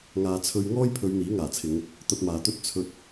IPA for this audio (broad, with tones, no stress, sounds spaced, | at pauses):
ŋ aː˨ t͡sʰ ɵ˧ ɥ ŋ ɔː˥ j pʰ ɵ˨˧ ɥ n̪ iː˨˥ ŋ aː˨˩ t͡sʰ ɪ˨˧ ŋ | t̪ ɐ˧ t̚ m aː˨ t̪ ɵ˥ t̚ t͡sʰ ɵ˧ t̚